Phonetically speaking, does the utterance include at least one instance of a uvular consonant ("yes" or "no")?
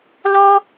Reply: no